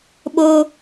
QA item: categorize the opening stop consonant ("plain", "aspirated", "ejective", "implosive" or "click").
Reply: implosive